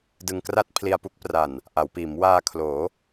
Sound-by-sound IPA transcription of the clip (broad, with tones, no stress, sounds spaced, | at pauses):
d ɯ˧ ŋ k r a˥˩ t̚ pʰ l i˧ a̯ p u˦˥ k̚ p r a˨˩ n | ʔ a˩˦ w p iː˩˦ m w aː˧ kʰ l oː˩˦